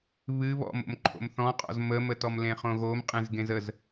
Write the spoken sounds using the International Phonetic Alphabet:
β ɨ β ɔ̰ m o̰ m ǃʰ o̰ m θ ɔ̃ qʼ ɔ̰ z m ə m ə t ɔ m l ẽ χ õ ɣ o m qʼ ẽ z ɡ ẽ z ə z

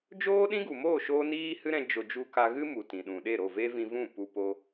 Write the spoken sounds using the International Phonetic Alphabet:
d͡ʒ oː˦ ɗ ĩ˦ ɡ u˨ m oː˦˨ ʃ oː˦ n iː˦ h ɨ˦ ɾ ɛ̃˧ d͡ʒ o˧ d͡ʒ u˦ k a˦ ɣ ɨ˦ m u˨ t ĩ˨ ɗ ũ˨ ɗ e˦˨ ɾ o˦˨ v e˦ v ĩ˧ v ũ˦˨ p u˧ p o˧

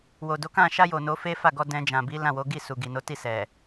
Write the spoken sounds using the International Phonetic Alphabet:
w o˨ d o˨˦ k ã˦˨ ʃ a˧ j o˨ n o˨˦ f e˦ f a˦˨ ɡ ɔ˧ d ɛ̃˧ d͡ʒ ã˨ b i˨˦ l ã˦˨ w o˨˦ ɡ i˦˨ s u˨ ɡ i˨ n o˨˦ t i˦˨ s ɛ˨

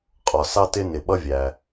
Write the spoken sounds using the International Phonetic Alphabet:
qʼ ɒ˩ s ɑ˧ t ɪ˧ n ɪ˩ ɓ ʌ˧ vʲ æ˩

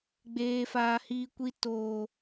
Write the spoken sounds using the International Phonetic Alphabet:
ɡ͡b eː˧ f aː˧ h iː˧ kʷ i˧ t oː˨

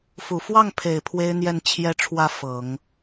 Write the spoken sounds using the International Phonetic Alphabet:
f u˨˩ f w ɑ˥˩ ŋ pʰ e˨˩ ɪ̯ pʰ w e˥ ɪ̯ n̪ j ɛ˥˩ n t͡ɕʰ j ɛ˥ ʈ͡ʂʰ w ä˥˩ f ɤ˨˩˦ ŋ

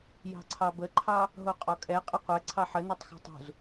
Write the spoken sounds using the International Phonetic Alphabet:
j ɑ̤ ǀʰ ɑ b ə ǃʰ ɑ | ɦ o qʼ ɔ kʼ ɛ qʼ ə qʷ ɛ ǀʰ ɑ ħ ə n o tˤ x ɑ̤ tˤ ṳ z

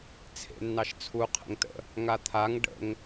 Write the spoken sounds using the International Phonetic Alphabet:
t͡sʰ ḛ nː ɑ ʃ t͡sʰ u qʰ ə̰ ŋ t ə̰ | ŋ a t̪ʰ a ŋ ɖ ə̰ ŋ

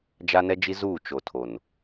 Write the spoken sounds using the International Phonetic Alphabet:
d͡ʒ a˦ n ɛ˦ d͡ʒ i˦ z uː˦˨ t͡ʃ o˨ tʰ o˨ n

